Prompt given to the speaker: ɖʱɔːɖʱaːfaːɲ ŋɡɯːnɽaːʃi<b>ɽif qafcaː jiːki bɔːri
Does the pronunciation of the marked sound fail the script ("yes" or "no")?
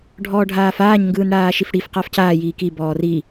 yes